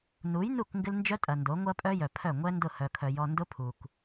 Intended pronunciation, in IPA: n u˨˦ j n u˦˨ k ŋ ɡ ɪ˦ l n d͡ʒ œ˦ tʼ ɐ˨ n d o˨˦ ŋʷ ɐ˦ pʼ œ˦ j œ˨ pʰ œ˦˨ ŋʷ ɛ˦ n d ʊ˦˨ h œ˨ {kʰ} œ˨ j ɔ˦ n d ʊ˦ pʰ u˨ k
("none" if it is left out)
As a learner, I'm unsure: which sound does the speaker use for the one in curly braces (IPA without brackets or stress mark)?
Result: kʰ